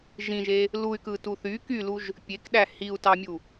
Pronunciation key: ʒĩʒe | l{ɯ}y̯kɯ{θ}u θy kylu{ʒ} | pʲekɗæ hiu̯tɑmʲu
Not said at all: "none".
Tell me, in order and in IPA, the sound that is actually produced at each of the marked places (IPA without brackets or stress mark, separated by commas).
u, t, ʒ